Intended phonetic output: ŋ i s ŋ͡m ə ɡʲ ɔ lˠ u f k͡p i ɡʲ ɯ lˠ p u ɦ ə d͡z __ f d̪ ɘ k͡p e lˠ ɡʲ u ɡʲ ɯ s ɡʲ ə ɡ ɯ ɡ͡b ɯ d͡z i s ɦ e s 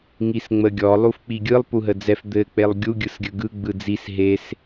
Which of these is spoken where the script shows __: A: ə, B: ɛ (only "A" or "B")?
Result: B